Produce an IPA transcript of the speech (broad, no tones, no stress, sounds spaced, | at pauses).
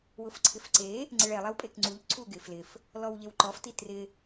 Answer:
w ʊ f ǀʰ ɪ f ǀ e | ŋ͡ǀ ɪ ɭ ɛ lˠ ɛ w pʼ e k ŋ͡ǀ u ʎ ǀʰ u ɡ ɪ f l ɪ f | l ɔ w ʎ e w ǃ ɔ f t i t r ɪ